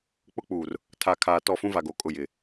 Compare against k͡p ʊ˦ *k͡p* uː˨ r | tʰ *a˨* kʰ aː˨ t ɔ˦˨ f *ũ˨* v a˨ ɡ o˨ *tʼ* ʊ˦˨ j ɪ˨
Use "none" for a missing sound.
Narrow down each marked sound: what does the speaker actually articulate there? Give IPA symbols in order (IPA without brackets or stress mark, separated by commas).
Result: k͡p, a˨, ũ˦, kʼ